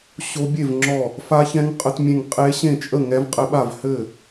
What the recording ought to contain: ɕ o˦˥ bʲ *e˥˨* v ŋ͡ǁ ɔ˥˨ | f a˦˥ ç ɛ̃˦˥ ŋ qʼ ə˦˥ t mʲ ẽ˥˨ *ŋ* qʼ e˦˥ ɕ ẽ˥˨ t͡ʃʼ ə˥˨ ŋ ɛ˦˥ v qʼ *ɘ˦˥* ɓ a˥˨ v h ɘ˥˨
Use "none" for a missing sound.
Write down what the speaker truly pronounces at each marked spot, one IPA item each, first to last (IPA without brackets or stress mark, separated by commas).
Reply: e˥˨, ŋ, ɘ˦˥